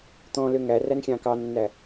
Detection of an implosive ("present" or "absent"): absent